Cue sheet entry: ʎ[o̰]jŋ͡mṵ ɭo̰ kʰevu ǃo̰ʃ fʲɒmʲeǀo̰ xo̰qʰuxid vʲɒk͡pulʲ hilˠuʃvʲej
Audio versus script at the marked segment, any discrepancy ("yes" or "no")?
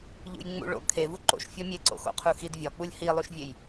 yes